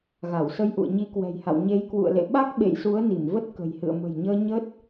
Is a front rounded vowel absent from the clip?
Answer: yes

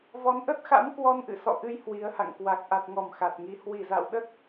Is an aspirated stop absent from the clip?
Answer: yes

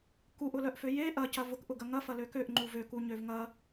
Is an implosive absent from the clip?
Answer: yes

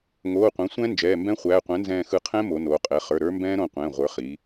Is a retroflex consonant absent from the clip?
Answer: yes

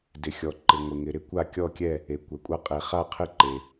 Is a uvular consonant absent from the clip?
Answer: no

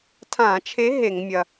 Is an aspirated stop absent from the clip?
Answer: no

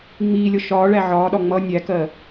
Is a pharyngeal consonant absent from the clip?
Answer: no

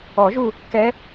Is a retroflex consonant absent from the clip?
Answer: yes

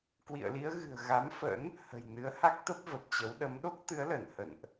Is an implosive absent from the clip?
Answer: no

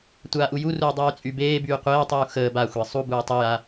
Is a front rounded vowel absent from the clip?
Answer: no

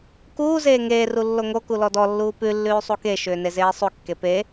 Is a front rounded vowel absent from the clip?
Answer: no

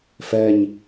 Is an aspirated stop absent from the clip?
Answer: yes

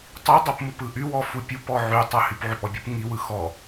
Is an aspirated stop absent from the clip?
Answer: yes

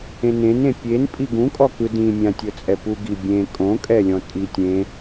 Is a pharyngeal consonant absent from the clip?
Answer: yes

